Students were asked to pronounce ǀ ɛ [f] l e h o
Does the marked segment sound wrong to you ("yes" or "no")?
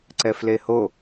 no